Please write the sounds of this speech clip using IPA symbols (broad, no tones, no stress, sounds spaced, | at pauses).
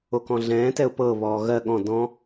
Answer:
o k ɔ̃ ɮ ɛ̃ː t ɛ ʊ̯ p ɤ β ɔː ɣ ɜ ɠ ɔ̃ d ɔ̃